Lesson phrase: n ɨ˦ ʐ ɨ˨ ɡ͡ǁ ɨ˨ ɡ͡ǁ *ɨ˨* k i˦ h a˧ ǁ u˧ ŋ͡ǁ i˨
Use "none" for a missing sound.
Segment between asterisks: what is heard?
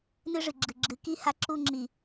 ɨ˨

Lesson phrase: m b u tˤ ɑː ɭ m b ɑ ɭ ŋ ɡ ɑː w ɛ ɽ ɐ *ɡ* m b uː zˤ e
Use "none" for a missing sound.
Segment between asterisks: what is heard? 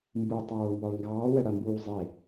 none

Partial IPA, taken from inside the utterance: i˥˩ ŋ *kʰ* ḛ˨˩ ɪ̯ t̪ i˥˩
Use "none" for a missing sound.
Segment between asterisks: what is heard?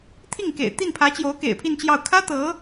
k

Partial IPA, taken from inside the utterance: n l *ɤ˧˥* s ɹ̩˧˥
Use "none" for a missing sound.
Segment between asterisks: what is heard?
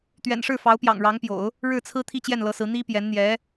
ɤ˧˥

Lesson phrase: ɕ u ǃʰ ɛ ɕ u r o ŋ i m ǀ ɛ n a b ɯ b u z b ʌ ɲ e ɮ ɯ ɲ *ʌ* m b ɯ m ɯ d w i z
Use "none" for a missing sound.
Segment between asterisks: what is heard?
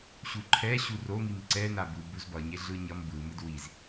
ʌ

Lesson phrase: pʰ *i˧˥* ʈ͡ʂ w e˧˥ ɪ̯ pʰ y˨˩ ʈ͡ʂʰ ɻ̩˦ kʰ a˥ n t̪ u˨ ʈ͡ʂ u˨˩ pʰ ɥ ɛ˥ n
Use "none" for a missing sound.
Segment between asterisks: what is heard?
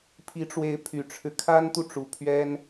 i˧˥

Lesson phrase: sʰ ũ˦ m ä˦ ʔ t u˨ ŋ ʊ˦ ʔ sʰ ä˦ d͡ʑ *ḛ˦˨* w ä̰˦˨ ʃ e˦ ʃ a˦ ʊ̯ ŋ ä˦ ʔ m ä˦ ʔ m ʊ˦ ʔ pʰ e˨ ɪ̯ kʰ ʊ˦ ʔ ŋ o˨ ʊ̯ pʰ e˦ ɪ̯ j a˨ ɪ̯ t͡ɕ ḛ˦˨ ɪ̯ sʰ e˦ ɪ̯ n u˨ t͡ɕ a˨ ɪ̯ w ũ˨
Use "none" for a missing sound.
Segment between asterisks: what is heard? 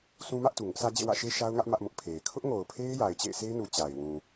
ḛ˦˨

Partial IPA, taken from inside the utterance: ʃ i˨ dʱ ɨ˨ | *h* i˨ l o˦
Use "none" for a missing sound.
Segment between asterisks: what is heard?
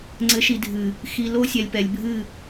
x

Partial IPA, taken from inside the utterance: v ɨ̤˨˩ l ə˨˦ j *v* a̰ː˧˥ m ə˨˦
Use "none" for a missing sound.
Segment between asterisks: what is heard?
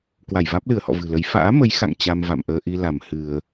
f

